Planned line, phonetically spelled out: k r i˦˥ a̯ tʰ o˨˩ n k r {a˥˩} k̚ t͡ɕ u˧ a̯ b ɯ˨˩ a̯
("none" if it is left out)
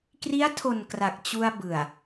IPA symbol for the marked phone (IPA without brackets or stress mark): a˨˩